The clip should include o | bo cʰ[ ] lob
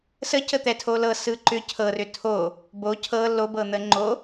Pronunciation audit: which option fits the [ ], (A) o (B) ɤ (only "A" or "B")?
B